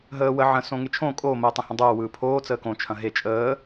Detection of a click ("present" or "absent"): absent